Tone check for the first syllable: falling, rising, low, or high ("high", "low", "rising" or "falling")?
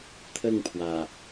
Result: falling